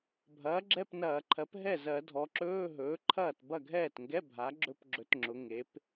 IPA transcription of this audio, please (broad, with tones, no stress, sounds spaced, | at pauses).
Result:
bʱ ɐː˩˥ ɡ͡ǁ ɛ˧˥˧ p n ɐː˧˩˧ ǃʰ ɜ˩˥ p ɦ ɛ˥˩ z ɜ˧˩˧ dʱ ɔ˩˧ ǁ ɵː˧˥˧ ɦ ɵː˩˥ ǃʰ ɐː˥˩ t b ɐ˥˩ ɡʱ ɛː˥˩ t ŋ ɡ ɛ˧˥˧ bʱ a˩˥ ɡ͡ǁ ɵ˧˥˧ p ɡ͡ǁ ɵ˩˥ t ŋ͡ǁ ʊ˩˧ ŋ e˩˥ p